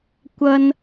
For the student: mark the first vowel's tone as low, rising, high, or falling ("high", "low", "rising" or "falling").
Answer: high